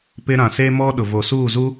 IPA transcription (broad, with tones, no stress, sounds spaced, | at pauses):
p ɪ˦ ɾ ã˨ s e˦ m ɔ˦ ɗ ʊ˨ v o˨ s uː˦˨ z u˦